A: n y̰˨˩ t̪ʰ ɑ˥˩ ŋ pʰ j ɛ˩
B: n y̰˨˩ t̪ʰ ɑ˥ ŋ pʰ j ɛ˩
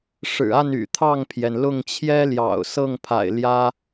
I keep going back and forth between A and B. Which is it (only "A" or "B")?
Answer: A